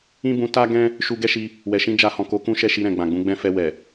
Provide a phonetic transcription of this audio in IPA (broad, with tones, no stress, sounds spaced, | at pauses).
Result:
ĩ˦ b ũ˧ t a˦ ɡ ɛ̃˦ | ʃ u˧ ɡ ɛ˦ ʃ i˧ | w ɛ˨ ʃ ĩ˧ d͡ʒ a˧ h ɔ̃˨ k o˨˦ k ũ˦ ʃ ɛ˦˨ ʃ i˧ ɾ ɛ̃˨ ɡ͡b ã˨ ɡ͡b ũ˨˦ ɡ͡b ɛ̃˦ f ɛ˧ w ɛ˨